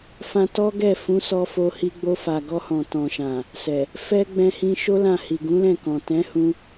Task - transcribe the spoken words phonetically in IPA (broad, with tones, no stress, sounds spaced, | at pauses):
f ã˧ t ɔ˦ ɡ ɛ˦˨ f ũ˨˦ s ɔ˧ f o˧ h i˧ ɡ͡b o˧ f a˨ ɡ ɔ˧ h ɔ̃˨ t ɔ̃˨ ʃ ã˨ | s ɛ˨ | f ɛ˧ ɡ͡b ɛ̃˧ h ĩ˧ ʃ o˦ l ã˦˨ h i˨ ɡ ũ˨˦ l ɛ̃˦˨ k ɔ̃˨ t ɛ̃˨˦ h ũ˧